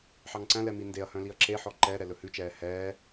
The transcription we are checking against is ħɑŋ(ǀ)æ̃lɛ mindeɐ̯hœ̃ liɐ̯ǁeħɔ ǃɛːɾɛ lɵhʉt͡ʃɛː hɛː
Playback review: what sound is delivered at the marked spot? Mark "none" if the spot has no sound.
ǀ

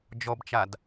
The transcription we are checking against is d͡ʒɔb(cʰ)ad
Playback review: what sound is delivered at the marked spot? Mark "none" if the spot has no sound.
t͡ʃ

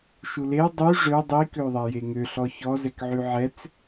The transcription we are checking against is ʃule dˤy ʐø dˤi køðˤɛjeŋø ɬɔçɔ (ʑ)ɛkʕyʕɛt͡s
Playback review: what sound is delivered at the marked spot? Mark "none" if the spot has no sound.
z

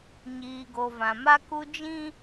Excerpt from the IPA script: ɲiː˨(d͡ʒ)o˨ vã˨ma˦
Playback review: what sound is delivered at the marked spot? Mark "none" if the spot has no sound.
ɡ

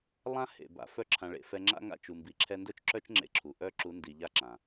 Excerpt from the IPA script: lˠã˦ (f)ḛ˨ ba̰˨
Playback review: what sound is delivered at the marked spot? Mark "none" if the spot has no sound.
h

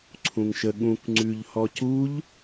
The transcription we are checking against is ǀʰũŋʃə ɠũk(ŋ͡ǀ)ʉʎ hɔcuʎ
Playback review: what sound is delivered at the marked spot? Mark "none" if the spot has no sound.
ŋ͡ǀ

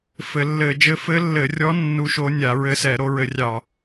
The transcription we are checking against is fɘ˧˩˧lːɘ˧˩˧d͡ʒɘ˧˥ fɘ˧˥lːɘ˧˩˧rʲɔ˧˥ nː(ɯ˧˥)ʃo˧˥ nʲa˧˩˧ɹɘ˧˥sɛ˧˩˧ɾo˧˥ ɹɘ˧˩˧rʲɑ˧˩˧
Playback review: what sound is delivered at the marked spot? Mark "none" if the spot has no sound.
u˧˥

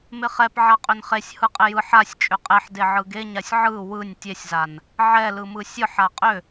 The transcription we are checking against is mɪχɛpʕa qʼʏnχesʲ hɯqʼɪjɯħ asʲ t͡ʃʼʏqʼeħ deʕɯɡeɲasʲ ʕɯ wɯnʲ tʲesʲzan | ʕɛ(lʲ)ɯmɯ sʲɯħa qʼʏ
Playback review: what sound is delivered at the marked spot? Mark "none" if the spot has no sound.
l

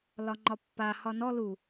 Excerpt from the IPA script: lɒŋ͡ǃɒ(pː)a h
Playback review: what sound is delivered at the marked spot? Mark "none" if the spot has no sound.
pː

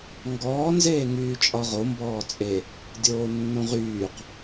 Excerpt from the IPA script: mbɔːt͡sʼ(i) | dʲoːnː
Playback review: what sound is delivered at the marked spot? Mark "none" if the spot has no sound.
e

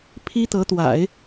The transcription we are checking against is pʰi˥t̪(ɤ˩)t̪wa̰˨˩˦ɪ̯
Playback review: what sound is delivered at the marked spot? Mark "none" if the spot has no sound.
ɤ˧˥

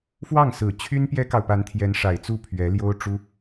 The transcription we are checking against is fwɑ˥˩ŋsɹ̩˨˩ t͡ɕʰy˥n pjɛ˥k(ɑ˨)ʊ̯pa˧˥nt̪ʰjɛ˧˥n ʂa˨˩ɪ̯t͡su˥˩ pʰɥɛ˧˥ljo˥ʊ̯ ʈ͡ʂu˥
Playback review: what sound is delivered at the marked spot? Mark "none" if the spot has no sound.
ɑ˨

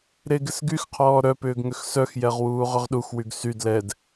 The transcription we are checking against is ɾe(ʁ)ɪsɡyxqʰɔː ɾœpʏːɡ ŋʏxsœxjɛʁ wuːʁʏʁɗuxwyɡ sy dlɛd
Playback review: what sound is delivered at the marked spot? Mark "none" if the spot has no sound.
ɡ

